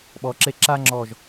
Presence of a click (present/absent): present